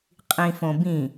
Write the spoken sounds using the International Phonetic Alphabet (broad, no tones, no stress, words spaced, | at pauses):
qʼĩfõbĩ